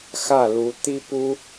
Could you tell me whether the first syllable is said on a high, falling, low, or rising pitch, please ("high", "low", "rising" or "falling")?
falling